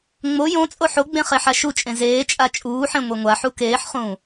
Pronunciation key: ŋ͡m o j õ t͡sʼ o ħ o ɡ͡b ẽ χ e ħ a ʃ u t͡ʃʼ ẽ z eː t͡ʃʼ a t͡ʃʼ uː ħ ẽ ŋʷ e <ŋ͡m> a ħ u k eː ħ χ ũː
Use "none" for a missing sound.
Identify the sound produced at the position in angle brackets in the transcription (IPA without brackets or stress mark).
ŋʷ